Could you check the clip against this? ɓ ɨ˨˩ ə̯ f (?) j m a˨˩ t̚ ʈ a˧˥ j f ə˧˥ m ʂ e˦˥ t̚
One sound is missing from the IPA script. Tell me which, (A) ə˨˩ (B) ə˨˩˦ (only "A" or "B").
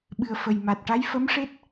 A